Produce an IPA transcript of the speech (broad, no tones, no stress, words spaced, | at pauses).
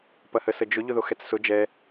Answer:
pɐhəsəd͡ʒʊ ʎʊðoxɛt͡ssʊ d͡ʒɛ